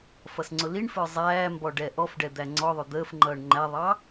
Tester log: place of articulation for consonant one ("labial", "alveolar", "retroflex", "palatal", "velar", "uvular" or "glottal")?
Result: labial